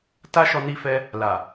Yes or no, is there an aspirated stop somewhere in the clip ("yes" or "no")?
no